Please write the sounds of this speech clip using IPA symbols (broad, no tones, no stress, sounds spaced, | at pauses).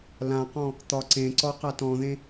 l ã q ɔ̃ | t̪ ɒ ǀ ẽ ǀ ɔ q a t ɔ̃ ð ẽ